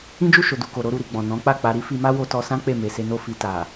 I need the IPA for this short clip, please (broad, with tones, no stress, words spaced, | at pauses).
ĩ˦d͡ʒu˦˨ʃo˨ du˨ko˨ ɾo˨˦ɾu˧ɾi˨ɡ͡bɔ̃˨ nɔ̃˨˦k͡pa˦˨k͡pa˧ ɾi˦fi˧ma˦ wo˧tɔ˧sã˦ k͡pe˦˨me˨se˧ no˦fi˧ ta˨